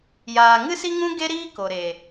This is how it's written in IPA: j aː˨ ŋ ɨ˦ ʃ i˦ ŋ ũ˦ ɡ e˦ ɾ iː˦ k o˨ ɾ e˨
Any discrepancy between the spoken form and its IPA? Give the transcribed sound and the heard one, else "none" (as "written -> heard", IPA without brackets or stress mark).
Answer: ʃ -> s